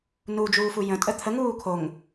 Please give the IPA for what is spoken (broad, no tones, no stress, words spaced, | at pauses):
nud͡ʒuːfu jə̃tʼə t̪ʰəŋuː kʰoŋ